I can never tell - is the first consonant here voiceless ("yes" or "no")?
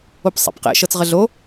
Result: yes